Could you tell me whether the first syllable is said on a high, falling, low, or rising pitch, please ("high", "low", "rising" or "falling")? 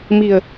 low